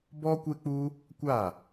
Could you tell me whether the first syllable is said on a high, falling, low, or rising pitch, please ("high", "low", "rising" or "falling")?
high